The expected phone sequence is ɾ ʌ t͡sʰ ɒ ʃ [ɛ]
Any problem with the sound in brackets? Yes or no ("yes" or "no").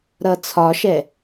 no